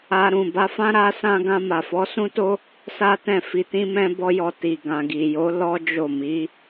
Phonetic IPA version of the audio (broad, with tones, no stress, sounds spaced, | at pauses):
a˧ ɾ ũ˨ b a˧ f ã˦ ɾ a˦ s ã˦ ɡ ã˧ m a˨ f ɔ˨˦ s ũ˦ t o˦ | s a˦ t ɛ̃˦˨ f i˧ t ĩ˦ m ɛ̃˦ b ɔ˦ j ɔ˧ t i˨ ɡ ã˨ ɡ i˨ j o˨˦ l ɔ˦ d͡ʒ o˦˨ m i˨˦